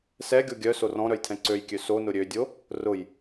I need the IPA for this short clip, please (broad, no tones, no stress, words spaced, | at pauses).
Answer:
sɛɡʲo ɡʲœ sorɔ̃ɾœj tʰɛ̃ǀøjkʲø sonʊ ɾʲødʲo | rʊj